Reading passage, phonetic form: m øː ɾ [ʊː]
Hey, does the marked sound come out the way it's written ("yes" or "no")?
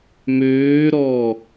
no